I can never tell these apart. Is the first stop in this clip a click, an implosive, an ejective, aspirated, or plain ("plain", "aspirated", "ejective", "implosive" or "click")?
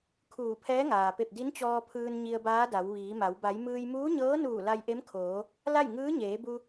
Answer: aspirated